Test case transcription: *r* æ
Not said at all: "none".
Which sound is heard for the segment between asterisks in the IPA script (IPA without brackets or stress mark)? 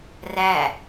r